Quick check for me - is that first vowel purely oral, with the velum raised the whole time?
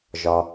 yes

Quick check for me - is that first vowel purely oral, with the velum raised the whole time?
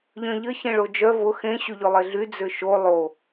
no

